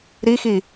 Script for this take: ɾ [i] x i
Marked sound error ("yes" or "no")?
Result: no